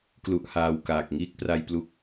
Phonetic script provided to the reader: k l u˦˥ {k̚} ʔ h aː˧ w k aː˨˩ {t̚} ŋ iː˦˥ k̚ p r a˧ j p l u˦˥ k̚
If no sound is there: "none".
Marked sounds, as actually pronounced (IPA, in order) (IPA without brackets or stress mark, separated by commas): none, k̚